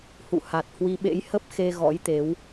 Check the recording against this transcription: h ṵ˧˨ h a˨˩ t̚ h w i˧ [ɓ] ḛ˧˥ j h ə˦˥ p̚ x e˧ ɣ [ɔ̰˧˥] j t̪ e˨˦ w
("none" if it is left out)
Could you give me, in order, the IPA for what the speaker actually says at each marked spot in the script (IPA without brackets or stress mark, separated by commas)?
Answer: ɓ, ɔ̰˧˥